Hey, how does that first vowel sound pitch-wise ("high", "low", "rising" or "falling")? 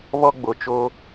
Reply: high